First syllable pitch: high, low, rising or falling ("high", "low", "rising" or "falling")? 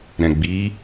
low